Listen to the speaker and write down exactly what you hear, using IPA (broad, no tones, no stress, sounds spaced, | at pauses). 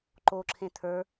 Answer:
ǃ o ǁʰ ẽ t̪ʰ ə˞